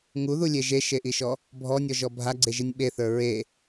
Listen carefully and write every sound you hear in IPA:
ŋ u ð u lʲ e ʒ e ʃ e ʔ i ʃ ɔ | bʱ ɔ nʲ ɔ ʒ ɔ bʱ a ɡ͡ǀ e ʒ i nʲ ɓ e θ ə˞ ɹ e

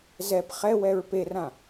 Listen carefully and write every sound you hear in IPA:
z ɛ p χ ɛ w ɛ ɹ p e r ã

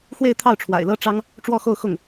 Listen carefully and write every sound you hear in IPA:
x w e˥˧ ɪ̯ t̪ʰ ɑ˥˩ ʊ̯ ʈ͡ʂʰ w a̰˨˩ ɪ̯ l ɤ˥ ʈ͡ʂ ɑ˥ ŋ | ʈ͡ʂ w ɔ˥˧ x o˥˧ ʊ̯ x ʊ˥˩ ŋ

